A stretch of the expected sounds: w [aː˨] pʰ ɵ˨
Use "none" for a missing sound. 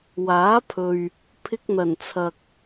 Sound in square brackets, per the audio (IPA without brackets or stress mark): aː˨˥